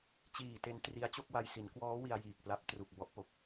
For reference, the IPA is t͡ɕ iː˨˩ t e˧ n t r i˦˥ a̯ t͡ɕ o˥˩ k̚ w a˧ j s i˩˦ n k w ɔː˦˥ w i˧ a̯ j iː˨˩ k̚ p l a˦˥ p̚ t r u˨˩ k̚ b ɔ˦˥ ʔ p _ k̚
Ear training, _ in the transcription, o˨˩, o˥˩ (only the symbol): o˨˩